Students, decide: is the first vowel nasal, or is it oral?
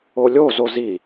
oral